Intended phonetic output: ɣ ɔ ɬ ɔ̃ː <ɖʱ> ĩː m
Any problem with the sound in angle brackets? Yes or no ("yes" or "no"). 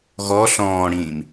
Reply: yes